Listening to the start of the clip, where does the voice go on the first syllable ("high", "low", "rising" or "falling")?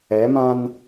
rising